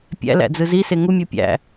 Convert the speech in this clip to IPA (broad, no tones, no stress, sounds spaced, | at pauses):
pʲ æ̰ l æ̰ d͡z ɯ z i s e ŋ u mʲ u pʲ æ̰